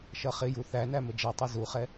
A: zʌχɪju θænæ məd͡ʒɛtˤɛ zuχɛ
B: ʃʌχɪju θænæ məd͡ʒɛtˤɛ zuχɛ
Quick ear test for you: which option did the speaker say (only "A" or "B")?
B